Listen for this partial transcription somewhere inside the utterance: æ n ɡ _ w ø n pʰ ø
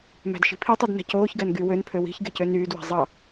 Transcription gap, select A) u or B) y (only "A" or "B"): B